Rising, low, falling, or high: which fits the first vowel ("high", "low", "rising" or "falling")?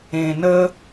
low